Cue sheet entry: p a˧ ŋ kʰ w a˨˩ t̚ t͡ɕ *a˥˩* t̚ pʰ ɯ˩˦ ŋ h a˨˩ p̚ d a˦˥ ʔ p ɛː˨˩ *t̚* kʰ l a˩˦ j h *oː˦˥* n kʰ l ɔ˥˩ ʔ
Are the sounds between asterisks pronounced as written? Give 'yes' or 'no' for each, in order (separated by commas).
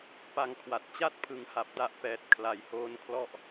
yes, yes, yes